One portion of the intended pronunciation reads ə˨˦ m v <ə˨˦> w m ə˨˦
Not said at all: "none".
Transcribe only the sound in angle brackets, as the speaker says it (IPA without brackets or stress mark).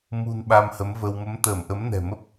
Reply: ə˧